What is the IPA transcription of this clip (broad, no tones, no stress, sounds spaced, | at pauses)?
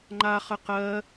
ŋ͡ǃ a χ ə q ɜ